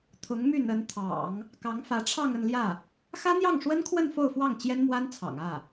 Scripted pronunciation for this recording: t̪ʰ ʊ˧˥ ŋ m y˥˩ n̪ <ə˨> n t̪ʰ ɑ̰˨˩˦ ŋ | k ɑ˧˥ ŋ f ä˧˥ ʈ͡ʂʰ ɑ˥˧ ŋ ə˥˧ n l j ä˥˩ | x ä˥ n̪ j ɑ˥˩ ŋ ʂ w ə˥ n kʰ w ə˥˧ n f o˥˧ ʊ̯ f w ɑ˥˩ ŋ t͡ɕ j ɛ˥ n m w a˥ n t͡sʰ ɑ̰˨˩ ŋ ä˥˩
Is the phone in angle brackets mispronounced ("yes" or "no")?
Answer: yes